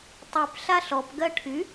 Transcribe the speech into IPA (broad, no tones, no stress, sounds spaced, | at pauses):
tˤ y p ɬ a ɬ ɔ p ɡ ɜ ʈʰ y